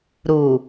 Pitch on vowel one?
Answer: low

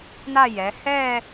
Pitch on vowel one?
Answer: falling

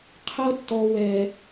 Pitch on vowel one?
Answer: high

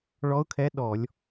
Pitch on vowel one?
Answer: rising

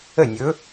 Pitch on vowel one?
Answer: falling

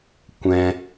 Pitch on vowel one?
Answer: high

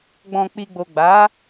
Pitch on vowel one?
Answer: low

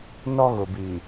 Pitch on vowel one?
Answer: high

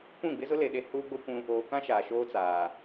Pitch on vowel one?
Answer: falling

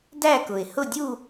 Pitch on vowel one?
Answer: falling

